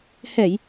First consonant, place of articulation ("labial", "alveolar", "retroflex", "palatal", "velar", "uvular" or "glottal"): glottal